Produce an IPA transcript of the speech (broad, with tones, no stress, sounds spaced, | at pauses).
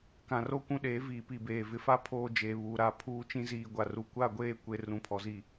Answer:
k ã˨ r o˦ kʷ ũ˦ ɗ eː˨˦ v iː˨ p i˨ b eː˨ v ɪ˨ f a˦ pʰ oː˨ d͡ʒ eː˨ β uː˨ ɾ a˦˨ pʰ uː˦ t͡ʃ ĩ˦ z iː˨ ɡʷ a˨ r u˨ kʷ a˦˨ ɡʷ eː˦˨ kʷ e˨ r ũ˨ pʰ ɔ˨ z i˨